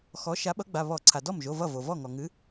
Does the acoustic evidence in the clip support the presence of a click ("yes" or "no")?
yes